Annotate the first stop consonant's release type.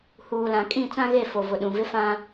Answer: ejective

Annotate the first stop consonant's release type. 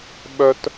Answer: implosive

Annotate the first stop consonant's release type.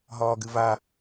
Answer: plain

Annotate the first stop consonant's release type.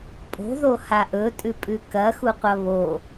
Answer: ejective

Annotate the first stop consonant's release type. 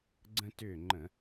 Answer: click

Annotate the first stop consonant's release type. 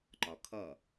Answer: click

